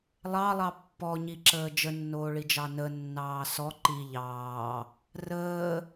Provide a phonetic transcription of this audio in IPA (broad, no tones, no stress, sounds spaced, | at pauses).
lˠ ɑ lˠ ɑ pː ɔ ɲ i ǁ əː d͡ʒ ə nː oː ɭ i d͡ʒ ɑ n ə nː ɑː s ɔ ǃ i ʎ ɑː | r əː